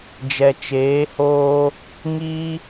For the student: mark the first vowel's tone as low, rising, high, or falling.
low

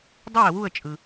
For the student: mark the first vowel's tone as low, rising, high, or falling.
falling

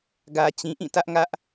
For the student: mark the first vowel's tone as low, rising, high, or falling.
low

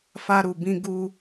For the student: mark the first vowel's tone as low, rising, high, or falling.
high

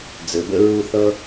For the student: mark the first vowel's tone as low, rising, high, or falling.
low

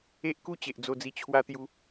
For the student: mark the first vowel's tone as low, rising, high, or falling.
high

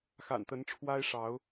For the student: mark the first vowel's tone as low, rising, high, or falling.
low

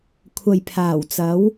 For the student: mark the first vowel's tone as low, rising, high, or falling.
low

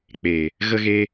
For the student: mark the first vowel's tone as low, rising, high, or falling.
low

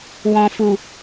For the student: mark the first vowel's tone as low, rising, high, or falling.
low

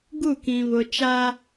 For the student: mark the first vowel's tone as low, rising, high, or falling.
falling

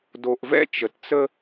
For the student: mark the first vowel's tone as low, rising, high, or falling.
low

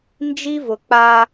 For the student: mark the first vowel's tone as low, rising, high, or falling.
high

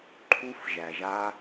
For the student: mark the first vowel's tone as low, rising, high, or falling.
high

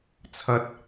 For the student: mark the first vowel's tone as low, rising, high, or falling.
rising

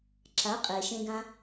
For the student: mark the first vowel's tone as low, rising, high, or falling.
rising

